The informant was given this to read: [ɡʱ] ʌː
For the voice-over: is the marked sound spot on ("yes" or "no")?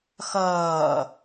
no